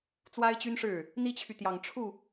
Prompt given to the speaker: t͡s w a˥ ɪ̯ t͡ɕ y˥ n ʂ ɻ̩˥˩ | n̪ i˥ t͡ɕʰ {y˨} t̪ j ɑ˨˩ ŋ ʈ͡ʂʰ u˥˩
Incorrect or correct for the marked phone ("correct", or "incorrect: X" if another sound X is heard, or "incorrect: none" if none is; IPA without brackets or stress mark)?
correct